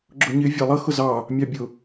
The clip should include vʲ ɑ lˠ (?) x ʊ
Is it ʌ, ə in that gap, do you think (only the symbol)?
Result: ʌ